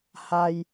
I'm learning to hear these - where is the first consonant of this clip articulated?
throat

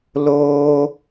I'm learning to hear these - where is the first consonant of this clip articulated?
tongue tip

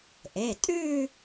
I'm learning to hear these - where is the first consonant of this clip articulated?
throat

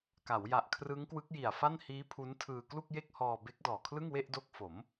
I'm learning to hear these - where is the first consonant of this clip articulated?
velum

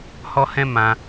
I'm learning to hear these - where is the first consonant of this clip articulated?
throat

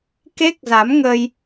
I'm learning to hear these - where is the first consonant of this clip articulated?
velum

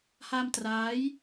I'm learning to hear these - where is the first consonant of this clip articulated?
throat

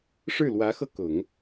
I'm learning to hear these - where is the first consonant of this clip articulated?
retroflex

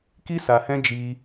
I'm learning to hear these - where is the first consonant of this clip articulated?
velum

